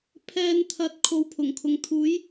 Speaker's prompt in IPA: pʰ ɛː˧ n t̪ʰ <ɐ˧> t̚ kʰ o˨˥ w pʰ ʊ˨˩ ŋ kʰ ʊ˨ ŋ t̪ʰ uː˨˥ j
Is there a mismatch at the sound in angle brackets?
yes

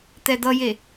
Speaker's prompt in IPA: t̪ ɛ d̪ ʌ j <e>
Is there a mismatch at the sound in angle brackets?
no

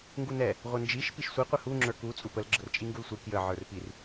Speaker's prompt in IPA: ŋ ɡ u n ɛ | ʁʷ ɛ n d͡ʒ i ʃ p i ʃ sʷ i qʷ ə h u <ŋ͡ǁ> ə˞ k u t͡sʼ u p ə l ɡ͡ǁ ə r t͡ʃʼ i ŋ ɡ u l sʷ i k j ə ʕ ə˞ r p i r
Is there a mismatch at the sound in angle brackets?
no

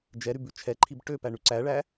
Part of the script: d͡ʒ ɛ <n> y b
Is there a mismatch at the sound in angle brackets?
yes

